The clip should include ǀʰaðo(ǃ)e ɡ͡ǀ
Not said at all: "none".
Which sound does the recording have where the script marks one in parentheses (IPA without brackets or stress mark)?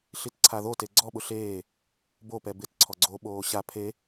t